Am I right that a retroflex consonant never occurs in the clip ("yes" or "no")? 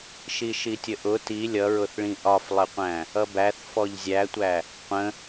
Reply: no